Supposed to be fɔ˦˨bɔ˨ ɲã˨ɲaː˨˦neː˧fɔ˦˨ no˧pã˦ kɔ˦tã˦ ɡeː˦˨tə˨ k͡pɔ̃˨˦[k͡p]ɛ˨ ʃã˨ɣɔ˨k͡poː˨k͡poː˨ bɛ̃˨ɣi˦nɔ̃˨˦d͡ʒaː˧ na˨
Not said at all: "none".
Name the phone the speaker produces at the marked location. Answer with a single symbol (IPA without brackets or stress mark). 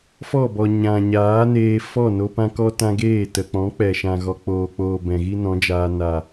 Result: k͡p